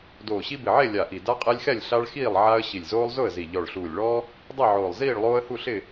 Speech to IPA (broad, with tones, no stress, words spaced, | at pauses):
doː˨˩ɕi˦bɪ˨˩ʕe˥˨ lʲa˨˩ʔi˨˩ da˦qʼe˦lʲxɛ˥˨lʲ ɬa˦ɭxiː˥˨lˠ ʕa˦ə̯ ɕi˨˩lʲzoː˦lˠzʊ˥˨ə̯zi˨˩ ʎɔ˨˩ɭɬuː˨˩lʲɭɔː˦ | dˤi˥˨ ʕoː˨˩lˠ ziː˥˨ɭlˠoː˦ə̯hu˥˨ɬɪ˥˨